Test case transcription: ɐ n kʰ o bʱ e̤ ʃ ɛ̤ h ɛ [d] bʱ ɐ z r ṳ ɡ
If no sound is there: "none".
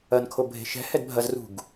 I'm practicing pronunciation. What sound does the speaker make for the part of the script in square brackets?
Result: d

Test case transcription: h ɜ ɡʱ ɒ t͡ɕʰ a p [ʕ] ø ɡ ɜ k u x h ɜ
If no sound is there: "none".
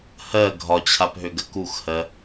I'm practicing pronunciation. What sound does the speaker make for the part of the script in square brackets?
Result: ɦ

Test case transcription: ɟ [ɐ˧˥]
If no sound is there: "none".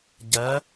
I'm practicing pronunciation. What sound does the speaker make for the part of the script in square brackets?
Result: ɐ˧˥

